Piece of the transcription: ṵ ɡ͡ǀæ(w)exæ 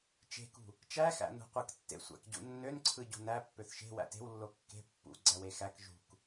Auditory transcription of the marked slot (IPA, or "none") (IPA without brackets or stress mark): w